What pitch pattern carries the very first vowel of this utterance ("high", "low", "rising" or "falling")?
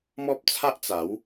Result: high